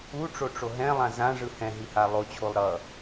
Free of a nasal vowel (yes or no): no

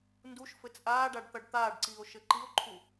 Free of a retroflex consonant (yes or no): no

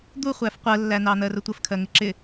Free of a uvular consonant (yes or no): no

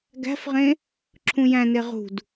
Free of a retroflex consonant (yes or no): yes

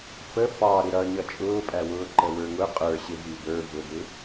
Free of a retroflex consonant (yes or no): yes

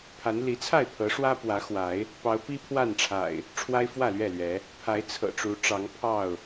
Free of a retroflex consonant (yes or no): no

